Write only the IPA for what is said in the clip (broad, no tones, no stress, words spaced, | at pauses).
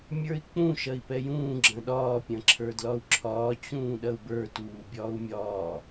mʲə˞i̯k͡pũ ʃɐi̯pɛjũː ɡ͡ǁɐ̃ɗɒː pʲɐ̃ǁʰə˞dlɒu̯ǁʰɒː t͡ɕũːɗɐu̯bə˞ tuːbʲɒːu̯mʲɒː